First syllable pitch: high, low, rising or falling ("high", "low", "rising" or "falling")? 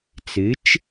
rising